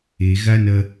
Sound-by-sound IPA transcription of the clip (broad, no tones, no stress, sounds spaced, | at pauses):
e ɣ a n ɐ